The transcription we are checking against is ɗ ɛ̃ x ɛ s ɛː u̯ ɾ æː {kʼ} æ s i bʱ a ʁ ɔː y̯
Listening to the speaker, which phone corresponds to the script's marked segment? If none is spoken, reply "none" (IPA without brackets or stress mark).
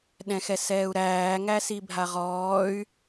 ŋ